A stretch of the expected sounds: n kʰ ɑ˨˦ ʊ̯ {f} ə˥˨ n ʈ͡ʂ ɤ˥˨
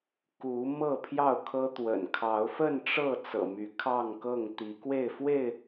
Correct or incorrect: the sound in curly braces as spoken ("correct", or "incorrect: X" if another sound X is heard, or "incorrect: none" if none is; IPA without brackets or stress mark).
correct